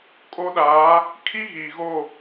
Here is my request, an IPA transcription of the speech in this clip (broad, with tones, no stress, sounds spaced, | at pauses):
kʼ o˦ ɗ aː˨˦ | kʰ i˦ ɣ iː˨ ɣ o˦˨